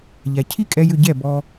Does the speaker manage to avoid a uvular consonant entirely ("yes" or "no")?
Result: yes